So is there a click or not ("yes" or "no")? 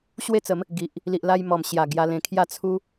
no